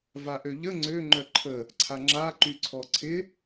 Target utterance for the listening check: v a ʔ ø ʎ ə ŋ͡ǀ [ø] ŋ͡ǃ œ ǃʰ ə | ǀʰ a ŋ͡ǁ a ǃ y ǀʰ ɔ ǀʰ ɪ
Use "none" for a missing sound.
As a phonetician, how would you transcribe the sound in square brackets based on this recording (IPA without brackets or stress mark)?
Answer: ø